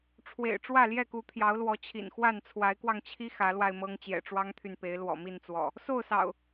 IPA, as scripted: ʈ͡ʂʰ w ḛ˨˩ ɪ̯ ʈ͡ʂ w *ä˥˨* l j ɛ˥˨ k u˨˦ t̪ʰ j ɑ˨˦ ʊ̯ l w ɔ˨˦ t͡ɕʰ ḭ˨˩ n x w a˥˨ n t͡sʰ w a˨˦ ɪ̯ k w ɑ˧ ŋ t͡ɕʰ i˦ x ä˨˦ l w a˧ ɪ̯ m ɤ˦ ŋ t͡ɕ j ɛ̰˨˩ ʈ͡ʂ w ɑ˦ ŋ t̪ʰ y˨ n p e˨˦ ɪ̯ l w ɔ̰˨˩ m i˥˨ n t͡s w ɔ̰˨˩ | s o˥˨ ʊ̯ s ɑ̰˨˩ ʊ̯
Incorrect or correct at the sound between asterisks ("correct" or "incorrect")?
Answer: correct